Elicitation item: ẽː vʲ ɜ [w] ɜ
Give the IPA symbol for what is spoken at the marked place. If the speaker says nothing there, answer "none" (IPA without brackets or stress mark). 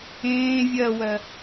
w